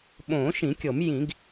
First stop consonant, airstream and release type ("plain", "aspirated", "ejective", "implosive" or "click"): implosive